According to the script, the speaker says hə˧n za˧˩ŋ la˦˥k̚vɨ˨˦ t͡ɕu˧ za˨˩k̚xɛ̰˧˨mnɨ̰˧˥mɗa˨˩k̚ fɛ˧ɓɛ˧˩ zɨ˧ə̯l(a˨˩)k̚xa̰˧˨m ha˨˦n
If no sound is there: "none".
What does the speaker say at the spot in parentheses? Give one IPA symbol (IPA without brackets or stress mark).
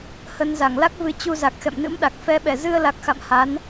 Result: a˨˩